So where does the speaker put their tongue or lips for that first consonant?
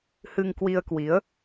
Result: throat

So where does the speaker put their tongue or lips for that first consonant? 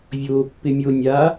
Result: lips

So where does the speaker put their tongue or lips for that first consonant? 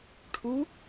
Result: retroflex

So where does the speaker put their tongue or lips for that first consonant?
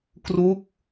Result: velum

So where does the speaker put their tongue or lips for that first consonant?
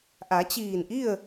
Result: throat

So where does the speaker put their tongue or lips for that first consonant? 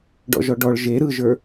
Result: retroflex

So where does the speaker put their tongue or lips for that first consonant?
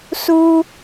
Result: tongue tip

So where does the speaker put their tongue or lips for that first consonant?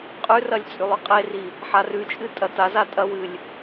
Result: uvula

